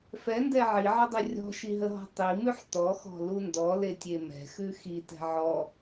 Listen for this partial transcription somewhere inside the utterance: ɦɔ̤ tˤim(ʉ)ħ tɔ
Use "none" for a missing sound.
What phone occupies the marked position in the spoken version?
ʉ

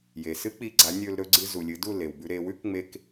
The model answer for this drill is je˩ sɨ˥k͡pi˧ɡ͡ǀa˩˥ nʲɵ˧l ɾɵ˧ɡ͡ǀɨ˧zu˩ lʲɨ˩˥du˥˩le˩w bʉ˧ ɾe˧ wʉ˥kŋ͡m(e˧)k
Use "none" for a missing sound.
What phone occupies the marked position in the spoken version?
e˧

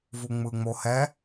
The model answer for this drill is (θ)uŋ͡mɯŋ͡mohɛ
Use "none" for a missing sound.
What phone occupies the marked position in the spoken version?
v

